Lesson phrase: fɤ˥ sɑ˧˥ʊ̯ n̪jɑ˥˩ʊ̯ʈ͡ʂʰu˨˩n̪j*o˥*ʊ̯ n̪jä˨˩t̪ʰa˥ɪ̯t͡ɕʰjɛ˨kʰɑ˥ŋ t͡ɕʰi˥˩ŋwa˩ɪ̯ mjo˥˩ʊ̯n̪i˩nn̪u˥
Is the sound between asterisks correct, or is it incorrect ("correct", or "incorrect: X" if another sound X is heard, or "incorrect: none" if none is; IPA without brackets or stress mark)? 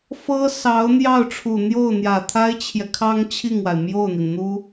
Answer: incorrect: o˥˩